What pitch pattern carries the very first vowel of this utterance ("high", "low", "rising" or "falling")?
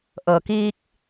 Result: low